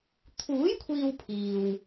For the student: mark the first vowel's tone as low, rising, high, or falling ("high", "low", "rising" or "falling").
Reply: rising